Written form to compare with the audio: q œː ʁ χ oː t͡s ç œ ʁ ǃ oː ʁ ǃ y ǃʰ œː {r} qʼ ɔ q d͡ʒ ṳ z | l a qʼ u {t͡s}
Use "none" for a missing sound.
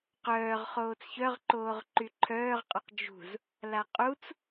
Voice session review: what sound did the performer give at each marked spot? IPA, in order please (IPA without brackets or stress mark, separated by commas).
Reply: ʁ, t͡s